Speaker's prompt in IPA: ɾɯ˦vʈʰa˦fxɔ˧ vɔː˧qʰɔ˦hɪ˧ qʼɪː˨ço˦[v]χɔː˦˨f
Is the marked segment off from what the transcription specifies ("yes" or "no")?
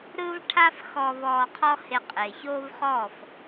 no